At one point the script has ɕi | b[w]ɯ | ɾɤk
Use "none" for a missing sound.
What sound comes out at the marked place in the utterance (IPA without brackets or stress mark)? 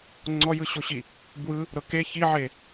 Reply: w